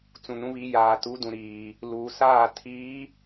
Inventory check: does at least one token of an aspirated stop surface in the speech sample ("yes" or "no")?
yes